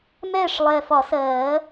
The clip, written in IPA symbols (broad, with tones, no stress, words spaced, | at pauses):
mɛː˥˨ʂlˠɛː˨˩fɒ˨˩˦ sɜː˨˩˦